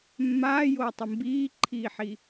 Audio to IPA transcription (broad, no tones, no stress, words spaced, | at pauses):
mːaːjoːtˤɯ mbiːǃʰiːħi